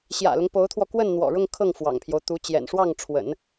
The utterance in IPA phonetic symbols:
ɕ j ä̰˨˩ l ʊ˦ ŋ p o˧˥ ʊ̯ t̪ʰ w ɔ˧ k w ə˥˩ n n̪ w ɔ̰˨˩ ɻ ʊ˥˧ ŋ kʰ ɤ˥˩ ŋ f w ɑ̰˨˩ ŋ pʰ j o˦ ʊ̯ t̪ u˧˥ t͡ɕ j ɛ̰˨˩ n ʂ w ɑ˥˩ ŋ ʈ͡ʂʰ w ə̰˨˩˦ n

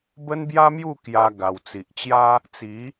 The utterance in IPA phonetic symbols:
b ə˦ n b j a˦ m j u˥˧ k j a˧ ɡ a˨˩ w t͡s i˨ ʔ t͡ɕ j a˦ | t͡s i˨˦

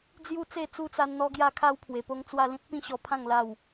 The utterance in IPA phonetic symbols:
d͡z j u˦ t͡s e˥˧ t͡s u˦ t͡s a˧ n n̪ ɔ˧ ɡ j a˧ kʰ a˦ w pʰ w e˨˩ p o˦ ŋ t͡s w a˥˧ l ĩ˦ t̚ p ĩ˦ ɕ ɔ˧ pʰ ã˥˧ ŋ l a˥˧ w

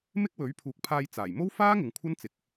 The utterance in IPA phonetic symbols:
m ɪ˥ k̚ w ɵ˨˥ ɥ pʰ uː˨ k̚ pʰ aː˧ j t͡s aː˨˩ j m o˥ w f aː˥ ŋ ɪ˨ ŋ kʷʰ ɐ˥ n t͡s ɪ˨˥ k̚

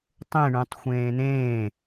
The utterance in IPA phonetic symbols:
tˤ ẽ ɳ ũ tˤ xʷ ẽː n̪ ẽː

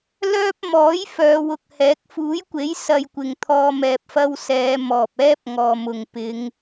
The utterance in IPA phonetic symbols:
l œː˥ p̚ m ɔː˨˥ j f œː˨˧ w ʊ˧ k̚ h ɛː˨˥ k̚ f uː˨˥ j kʷ e˨˥ j s ɐ˧ j kʷ ɪ˨ ŋ t̪ʰ ɔː˧ m ɛː˨ p̚ f ɐ˧ w s ɛː˨˧ m ɔː˨ p̚ ɛː˥ p̚ ŋ ɔː˨ m ʊ˨ ŋ p ɪ˨˧ ŋ

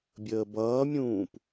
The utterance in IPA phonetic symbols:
bʲ əː b ʌː mʲ ũː p

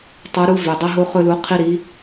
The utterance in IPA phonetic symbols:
tˤ o˨˥ ɾ u˦ v ø˩ dˤ ɵ˦ ɦ o˦ χ ɵ˦ l u˨˥ qʰ i˦ ɾ i˨˥

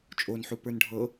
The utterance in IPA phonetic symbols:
t͡ʃʼ o n ħ u p ə˞ n ɖʱ ɤ

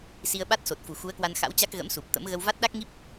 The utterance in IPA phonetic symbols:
s i˧ ə̯ ɓ a˦˥ t̚ s o˨˩ t̚ f u˨˩ x u˨˦ ə̯ k w a˧ n x a̰˧˥ w t͡ɕ a˦˥ k̚ ɣ ə̰˧˥ m s u˨˩ p̚ t̪ ə̰˧˥ m ɣ ə˧ w v a˦˥ t̚ ɗ a˦˥ k̚ ŋ i˦˥ p̚

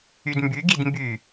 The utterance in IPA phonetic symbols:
y d m b y ɡ i d m b y

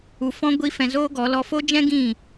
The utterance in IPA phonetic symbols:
u˧ f ɔ̃˦ ɡʷ i˦ f ɛ̃˧ z oː˦ ɡ ɔ˨˦ l ɔ˧ f o˦ d͡ʒ ɛ̃˦ ɡ ĩ˦˨

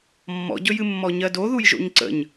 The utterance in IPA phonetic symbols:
mː ɔ̰ ɟ ɵ j ɨ mː ɔ ɲ ɜ d o ð u j ʒ o̰ ɲ ǀ ə̰ ɲ

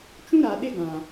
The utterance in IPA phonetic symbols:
t͡ʃ ũ˦ ɾ a˨ ɗ ɪ˦ ɡ ã˨

